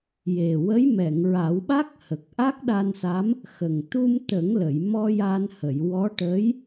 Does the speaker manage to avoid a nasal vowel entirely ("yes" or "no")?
yes